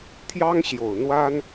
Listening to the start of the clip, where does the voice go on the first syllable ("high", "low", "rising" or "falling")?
high